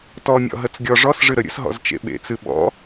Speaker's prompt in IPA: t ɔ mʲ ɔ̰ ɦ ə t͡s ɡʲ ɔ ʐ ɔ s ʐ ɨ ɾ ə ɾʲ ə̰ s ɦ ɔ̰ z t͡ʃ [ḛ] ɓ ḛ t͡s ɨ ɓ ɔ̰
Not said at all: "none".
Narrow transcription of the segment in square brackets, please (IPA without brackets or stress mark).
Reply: ḛ